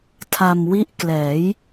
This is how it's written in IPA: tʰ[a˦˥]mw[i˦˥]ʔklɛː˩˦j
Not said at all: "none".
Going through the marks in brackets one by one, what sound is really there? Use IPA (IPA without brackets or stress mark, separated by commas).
a˧, i˦˥